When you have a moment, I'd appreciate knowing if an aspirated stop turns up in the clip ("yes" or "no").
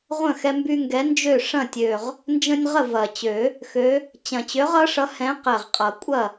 no